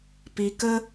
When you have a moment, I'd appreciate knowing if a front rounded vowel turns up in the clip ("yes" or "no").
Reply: no